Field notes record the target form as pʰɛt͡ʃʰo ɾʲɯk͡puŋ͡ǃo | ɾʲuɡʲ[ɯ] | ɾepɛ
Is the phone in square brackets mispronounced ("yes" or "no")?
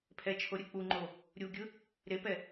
no